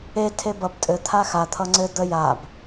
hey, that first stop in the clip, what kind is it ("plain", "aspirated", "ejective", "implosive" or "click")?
aspirated